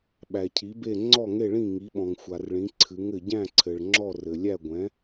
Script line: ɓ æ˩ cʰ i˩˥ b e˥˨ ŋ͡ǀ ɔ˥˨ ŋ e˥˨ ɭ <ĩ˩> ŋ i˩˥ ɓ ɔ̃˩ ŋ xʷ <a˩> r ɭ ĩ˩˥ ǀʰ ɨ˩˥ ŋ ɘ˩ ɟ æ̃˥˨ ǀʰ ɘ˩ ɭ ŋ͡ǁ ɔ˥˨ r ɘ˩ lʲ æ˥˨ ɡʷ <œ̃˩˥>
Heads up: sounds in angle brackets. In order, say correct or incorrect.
incorrect, correct, incorrect

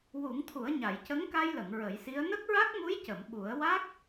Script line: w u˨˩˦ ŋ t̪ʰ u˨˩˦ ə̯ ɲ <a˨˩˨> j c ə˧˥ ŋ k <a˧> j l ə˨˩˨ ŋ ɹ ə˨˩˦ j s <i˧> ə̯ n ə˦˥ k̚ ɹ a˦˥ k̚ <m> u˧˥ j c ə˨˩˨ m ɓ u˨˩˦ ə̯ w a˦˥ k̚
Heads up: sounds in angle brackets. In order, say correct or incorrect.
correct, correct, incorrect, correct

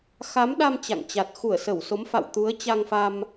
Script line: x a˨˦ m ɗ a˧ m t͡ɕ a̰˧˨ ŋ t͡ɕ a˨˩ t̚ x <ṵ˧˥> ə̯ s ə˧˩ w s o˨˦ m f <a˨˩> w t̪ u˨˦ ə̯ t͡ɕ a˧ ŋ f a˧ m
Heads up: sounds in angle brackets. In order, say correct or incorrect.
incorrect, incorrect

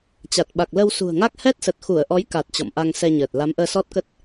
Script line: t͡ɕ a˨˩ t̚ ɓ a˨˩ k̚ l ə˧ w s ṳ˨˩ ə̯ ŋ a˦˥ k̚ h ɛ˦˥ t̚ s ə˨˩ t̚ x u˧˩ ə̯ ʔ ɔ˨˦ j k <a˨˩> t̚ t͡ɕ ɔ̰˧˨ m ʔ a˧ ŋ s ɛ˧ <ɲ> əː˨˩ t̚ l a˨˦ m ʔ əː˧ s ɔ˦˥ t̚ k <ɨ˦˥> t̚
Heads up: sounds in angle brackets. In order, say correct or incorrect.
correct, correct, incorrect

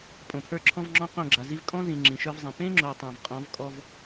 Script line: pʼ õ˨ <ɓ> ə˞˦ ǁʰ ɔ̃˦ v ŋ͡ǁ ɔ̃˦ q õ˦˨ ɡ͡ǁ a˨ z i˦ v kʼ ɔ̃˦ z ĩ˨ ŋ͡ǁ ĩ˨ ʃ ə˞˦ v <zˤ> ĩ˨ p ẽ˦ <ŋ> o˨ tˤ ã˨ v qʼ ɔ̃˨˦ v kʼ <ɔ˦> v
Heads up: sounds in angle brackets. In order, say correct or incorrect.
incorrect, correct, incorrect, correct

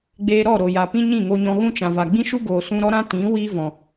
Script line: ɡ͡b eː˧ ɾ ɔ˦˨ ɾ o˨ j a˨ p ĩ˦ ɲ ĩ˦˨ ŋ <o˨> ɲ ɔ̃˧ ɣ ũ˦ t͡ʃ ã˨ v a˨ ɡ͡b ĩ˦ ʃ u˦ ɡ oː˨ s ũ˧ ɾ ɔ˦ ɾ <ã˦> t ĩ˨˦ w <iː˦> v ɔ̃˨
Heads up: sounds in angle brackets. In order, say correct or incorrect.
incorrect, correct, correct

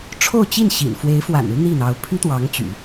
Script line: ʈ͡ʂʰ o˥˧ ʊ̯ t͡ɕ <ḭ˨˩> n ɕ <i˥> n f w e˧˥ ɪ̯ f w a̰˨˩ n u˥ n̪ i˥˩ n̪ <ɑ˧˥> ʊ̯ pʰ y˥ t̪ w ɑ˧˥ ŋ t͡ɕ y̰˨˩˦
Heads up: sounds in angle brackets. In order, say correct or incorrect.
incorrect, incorrect, correct

